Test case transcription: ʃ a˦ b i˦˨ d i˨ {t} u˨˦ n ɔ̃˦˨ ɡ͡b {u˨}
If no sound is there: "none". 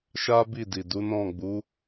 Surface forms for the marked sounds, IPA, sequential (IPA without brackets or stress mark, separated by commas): d, u˨˦